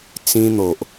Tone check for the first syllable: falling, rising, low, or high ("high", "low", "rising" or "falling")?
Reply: high